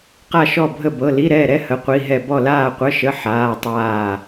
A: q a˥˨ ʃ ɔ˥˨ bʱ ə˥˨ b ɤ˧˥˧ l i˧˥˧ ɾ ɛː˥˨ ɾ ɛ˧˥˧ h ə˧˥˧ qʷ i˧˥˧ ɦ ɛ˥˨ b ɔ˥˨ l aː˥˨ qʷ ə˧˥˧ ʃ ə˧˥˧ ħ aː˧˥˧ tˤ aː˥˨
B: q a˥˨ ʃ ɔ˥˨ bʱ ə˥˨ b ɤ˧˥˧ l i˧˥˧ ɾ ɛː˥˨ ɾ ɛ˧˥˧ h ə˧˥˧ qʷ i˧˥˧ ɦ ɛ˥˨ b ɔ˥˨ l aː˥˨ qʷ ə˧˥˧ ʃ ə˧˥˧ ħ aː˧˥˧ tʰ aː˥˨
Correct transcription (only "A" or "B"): A